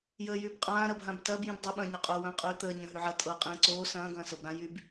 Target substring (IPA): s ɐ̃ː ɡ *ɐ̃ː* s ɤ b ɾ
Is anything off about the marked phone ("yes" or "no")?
no